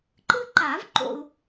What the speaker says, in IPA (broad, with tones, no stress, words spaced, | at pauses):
ǃɯ˥ǃa˨˩˦vǃo̰˨u̯